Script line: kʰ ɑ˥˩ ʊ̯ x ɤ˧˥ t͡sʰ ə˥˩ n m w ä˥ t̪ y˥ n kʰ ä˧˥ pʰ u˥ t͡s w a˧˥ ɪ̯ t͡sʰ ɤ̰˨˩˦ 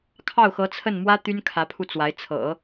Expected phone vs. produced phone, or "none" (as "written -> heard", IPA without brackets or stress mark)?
u˥ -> u˧